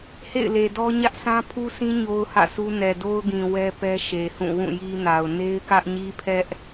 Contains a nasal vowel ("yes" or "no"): yes